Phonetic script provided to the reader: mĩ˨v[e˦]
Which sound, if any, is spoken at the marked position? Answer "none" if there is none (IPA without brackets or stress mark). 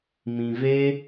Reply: e˦